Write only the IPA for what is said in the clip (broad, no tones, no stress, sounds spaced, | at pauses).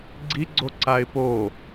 ɡ͡ǀ i ɡ͡ǀ o ǀ a ɪ̯ p o